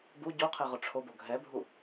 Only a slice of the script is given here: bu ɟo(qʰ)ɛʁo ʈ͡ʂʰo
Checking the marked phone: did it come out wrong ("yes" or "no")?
no